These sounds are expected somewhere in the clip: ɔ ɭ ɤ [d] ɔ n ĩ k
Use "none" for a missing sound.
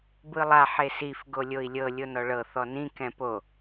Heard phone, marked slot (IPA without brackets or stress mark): θ